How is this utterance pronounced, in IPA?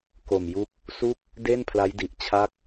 ko˨˩mju˦˥k̚ | su˥˩k̚ | de˥˩n pʰla˦˥jdi˨˩ʔ t͡ɕʰa˥˩k̚

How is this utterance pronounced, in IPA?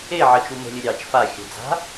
e ʕət͡ʃu mə̤lʲɘ ɾʲɑt͡ʃ fa xʲə̤ d͡za̤

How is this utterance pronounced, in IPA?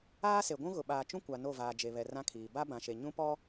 aː˦se˨ɡʷũ˦ɣʊ˨ ɓaː˨t͡ʃũ˦ kʷa˨no˦˨vaː˨ d͡ʒe˨βɛ˨ rã˦kʰiː˨ ba˦bã˨ ʃe˨ɲũ˦ pɔ˦

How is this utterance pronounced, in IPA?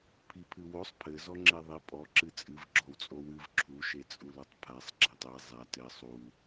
pʰipʰɨwosˤ pʰɘ zɔŋ͡ǁeðˤi pʼɔ ǁɨt͡sʼɨv ɡ͡ǁɔwt͡sʼowɨv ǁʰu ʃet͡sʼulɐtˤpʰasˤ ɡ͡ǁatˤe zˤa tɘ sˤu

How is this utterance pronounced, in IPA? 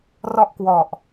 rɔ˥˩ʔkwɔ˨˩ʔ

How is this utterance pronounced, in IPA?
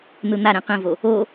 n̪ɯn̪aɾẽ qĩvo | o

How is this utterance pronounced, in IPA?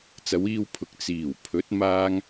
t͡sɐ˨˧wiː˧wpʰʊ˨k̚ t͡siː˨˩wpʰɵ˨˥t̚ maː˥ŋ

